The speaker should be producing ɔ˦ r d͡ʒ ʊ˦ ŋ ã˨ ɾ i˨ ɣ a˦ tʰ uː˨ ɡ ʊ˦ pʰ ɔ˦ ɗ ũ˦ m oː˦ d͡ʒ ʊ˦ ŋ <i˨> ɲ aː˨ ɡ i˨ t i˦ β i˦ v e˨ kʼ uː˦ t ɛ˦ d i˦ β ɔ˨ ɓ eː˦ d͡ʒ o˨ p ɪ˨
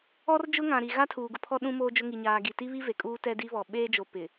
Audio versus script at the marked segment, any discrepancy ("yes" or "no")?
no